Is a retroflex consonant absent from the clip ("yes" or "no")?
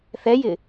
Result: yes